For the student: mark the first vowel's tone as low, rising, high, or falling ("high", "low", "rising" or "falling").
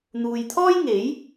low